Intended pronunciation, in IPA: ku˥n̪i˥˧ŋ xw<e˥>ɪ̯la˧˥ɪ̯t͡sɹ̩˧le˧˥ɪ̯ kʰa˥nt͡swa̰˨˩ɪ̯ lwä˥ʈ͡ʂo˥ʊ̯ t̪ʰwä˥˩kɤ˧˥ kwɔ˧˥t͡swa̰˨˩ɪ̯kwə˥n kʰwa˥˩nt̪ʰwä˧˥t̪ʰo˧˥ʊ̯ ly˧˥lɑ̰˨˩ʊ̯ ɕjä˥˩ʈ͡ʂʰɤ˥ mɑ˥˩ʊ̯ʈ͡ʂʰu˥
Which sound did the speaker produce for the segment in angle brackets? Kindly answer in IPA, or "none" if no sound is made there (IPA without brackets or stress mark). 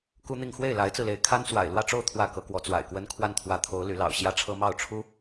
e˥˩